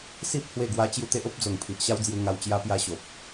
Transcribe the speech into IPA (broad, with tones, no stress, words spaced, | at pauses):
si˦p̚ hwe˥˧ɡwa˦ t͡ɕju˥˧ t̪e˦ʔo˦p̚d͡zo˨˩ŋ pʰi˨ʔɕa˦wd͡zju˧ŋa˧w t͡ɕja˦pja˦ɕo˨p̚